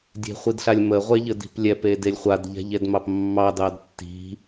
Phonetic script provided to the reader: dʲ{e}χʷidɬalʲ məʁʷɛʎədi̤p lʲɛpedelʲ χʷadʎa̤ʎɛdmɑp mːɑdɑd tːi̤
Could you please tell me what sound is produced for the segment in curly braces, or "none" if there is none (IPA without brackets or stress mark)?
e̤